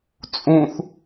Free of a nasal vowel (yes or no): no